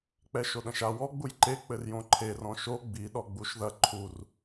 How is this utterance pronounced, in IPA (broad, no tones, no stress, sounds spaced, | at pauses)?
k͡p ɛ ʃ o ɗ ɐ̃ ʃ a w ɔ ɡ͡b u j ǃ e k͡p ɘ r j õ ǃʰ e r ɔ̃ ʃ o ɡ͡b i ɗ ɔ ɡ͡b u ʃ ð ɐ ǃʰ u r